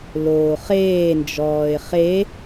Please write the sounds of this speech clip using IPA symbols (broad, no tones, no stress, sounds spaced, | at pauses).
l oː χ eː n d͡ʒ ɔː ɪ̯ χ e